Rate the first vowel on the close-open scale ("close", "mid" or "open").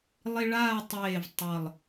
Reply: close